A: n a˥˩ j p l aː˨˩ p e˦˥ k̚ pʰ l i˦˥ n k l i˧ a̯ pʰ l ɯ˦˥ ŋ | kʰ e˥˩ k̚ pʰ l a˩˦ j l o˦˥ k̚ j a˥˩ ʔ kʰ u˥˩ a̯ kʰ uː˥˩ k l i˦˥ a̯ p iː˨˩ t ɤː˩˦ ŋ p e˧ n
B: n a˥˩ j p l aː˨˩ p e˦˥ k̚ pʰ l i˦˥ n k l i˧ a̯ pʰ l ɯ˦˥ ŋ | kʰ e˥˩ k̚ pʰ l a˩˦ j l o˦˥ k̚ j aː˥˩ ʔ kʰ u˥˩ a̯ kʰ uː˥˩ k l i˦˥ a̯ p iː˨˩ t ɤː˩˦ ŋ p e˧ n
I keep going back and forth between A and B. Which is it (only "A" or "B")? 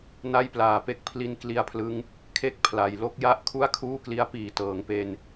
A